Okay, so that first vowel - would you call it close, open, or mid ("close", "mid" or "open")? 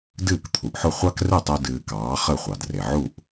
close